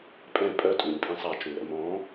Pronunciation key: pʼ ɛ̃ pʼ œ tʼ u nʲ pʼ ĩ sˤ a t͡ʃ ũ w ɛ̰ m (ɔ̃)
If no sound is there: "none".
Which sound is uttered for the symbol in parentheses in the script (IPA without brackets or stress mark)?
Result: ɔ̃